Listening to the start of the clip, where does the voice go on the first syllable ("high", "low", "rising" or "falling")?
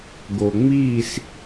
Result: low